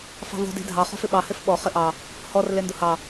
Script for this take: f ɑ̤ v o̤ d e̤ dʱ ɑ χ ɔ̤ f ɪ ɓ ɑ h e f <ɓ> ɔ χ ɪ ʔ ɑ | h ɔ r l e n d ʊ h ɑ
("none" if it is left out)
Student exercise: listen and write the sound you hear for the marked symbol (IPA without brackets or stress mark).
ɓ